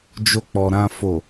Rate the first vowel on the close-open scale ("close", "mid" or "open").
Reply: mid